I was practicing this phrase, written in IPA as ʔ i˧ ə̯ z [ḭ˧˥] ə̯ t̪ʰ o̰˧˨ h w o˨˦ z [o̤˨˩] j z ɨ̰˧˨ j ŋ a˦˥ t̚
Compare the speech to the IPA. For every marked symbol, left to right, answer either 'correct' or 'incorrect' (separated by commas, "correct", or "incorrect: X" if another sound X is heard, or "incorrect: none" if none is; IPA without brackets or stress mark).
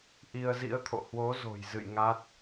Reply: correct, correct